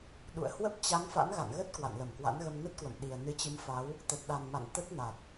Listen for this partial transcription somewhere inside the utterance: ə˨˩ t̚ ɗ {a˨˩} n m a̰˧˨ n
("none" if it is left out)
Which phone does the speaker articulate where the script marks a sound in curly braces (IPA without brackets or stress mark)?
a˨˩